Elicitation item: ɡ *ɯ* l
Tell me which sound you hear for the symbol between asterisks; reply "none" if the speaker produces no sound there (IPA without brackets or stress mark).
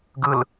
ɯ